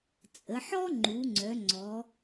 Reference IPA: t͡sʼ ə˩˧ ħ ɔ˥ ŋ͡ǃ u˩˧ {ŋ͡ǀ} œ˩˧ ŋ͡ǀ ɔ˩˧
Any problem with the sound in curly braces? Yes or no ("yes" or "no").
no